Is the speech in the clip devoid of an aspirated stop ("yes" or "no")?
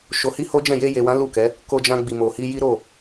yes